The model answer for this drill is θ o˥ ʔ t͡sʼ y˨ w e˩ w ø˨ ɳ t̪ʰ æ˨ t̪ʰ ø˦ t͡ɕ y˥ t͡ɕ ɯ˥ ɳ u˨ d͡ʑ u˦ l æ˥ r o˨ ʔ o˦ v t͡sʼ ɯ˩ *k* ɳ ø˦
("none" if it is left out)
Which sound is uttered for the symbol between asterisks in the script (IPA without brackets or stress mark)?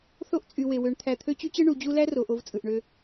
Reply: ʔ